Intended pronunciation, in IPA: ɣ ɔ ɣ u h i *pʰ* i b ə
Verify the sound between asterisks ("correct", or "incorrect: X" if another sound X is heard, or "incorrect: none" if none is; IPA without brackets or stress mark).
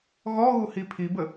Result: correct